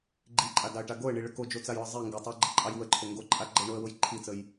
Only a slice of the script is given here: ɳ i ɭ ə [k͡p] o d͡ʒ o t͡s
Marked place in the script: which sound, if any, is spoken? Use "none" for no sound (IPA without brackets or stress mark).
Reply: k